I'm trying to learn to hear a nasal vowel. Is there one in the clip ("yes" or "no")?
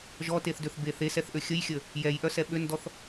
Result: no